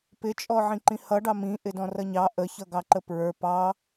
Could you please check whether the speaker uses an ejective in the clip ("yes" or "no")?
yes